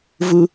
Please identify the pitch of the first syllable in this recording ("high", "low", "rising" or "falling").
high